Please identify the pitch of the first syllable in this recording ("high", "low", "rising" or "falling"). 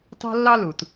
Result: high